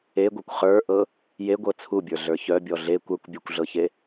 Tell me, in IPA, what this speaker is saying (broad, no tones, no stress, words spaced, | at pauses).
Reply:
eɡʷɤkʷ χə˞ʔɤ | jeɡʷɤ t͡sʰubʲə˞ɮə˞ çœbʲɔ ɮe kʷə˞kʷbʲœkʷɮɤçe